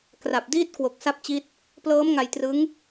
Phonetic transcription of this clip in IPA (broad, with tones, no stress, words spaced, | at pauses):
kra˨˩p̚ diː˦˥t̚ kwo˨˩k̚ sa˦˥p̚t͡ɕi˦˥t̚ | plɤː˦˥mŋa˧jtrɯ˦˥ŋ